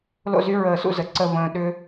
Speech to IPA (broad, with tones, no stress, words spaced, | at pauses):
lo̰˥˧zy˥ ɹəː˧˩sṵ˥˧ zə˩˧ ǀə˥˧və̃ː˧ ɗʏ˥